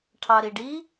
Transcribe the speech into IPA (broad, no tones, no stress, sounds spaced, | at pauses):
ʈʰ ɑ ɾ i ɖ i